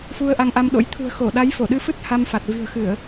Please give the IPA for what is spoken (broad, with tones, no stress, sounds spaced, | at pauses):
f u˧ ə̯ ʔ a˧ ŋ ʔ a˧ m ɗ o̰˧˥ j t̪ʰ ṳ˨˩ ə̯ x o˧˩ ɗ a˨˦ j f o˧˩ ɗ ɨ˧ f ɨ˦˥ t̚ h a˧ m f a˨˩ t̚ v i̤˨˩ ə̯ x ɨ˧˩˨ ə̯